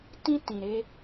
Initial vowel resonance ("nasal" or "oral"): nasal